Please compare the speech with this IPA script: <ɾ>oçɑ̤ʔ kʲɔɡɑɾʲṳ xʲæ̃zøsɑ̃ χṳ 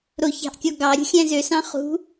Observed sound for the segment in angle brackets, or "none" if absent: ɾ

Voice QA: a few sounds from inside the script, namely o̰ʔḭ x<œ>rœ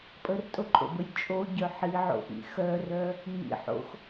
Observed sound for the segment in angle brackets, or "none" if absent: œ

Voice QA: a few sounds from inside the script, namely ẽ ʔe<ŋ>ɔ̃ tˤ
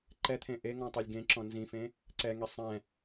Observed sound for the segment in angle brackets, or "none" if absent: ŋ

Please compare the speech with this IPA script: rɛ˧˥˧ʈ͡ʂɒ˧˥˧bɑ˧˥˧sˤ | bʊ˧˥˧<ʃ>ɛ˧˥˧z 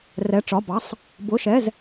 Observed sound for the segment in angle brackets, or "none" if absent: ʃ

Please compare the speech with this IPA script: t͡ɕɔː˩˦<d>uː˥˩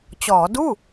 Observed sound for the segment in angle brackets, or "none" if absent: d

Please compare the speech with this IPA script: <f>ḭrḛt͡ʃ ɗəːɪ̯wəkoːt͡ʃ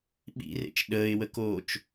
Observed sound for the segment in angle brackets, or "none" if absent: ɓ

